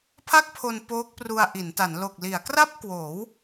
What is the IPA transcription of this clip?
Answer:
pʰ a˥˩ k̚ pʰ o˧ n p oː˦˥ k̚ p r u˧ a̯ ʔ i˩˦ n t a˩˦ n l o˨˩ k̚ l i˩˦ a̯ k r a˥˩ p̚ k w oː˩˦ w

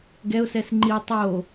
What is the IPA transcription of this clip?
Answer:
ɡ ɛ ʊ̯ s ɛ s ŋ͡ǃ i tˤ o

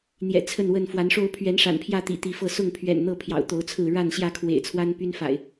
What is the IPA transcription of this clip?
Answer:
n̪ j ɛ̰˨˩ t͡sʰ ə˥˨ n w ə˥˨ n f w a˨˦ n ʂ o˦ ʊ̯ pʰ ɥ ɛ˨˦ n ʂ a̰˨˩ n pʰ j ä˥˨ t̪ ḭ˨˩ t̪ i˨˦ f ɤ˥˨ s ʊ˥˨ ŋ pʰ ɥ ɛ̰˨˩ n n̪ ɤ˥˨ pʰ j ɑ̰˨˩ ʊ̯ t̪ o˨˦ ʊ̯ t͡sʰ ɹ̩˥˨ ɻ a˥˨ n ɕ j ä˥˨ kʰ w ḛ˨˩ ɪ̯ t͡sʰ w a˦ n p y˦ n f a̰˨˩ ɪ̯

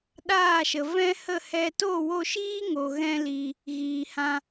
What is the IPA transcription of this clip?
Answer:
ɗ aː˦˨ ʃ ə˨ v ɛ̃˦ h ə˦˨ h ɛ˧ t o˦˨ w o˧ ʃ iː˦ ŋ o˨ ɣ ɛ̃˧ l i˨ | ɣ iː˨ h ã˧

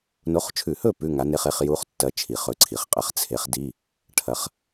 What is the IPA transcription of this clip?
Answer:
n o˨˥ χ t͡ʃʰ ʉ˧˩˧ h ɵ˥˩ p ʉ˧˥˧ ŋ a˨˥ n e˧˥˧ χ e˧˥˧ χ j u˧˥˧ χ tː ɐ˦˥ t͡ʃʰ i˧˩˧ χ ɵ˨˥ ǀʰ i˩˧ χ qʼ ɐ˨˥ χ t͡sʰ e˨˥ χ d i˧˥˧ | ʈʰ ɐ˨˥ χ

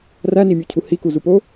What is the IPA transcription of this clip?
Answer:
r æ n i mʲ o cʰ u h i k u z u p o

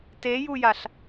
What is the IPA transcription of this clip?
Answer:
t e j u j a ɬ

